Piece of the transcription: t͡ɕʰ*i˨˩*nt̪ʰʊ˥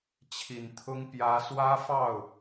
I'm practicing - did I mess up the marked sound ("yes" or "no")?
no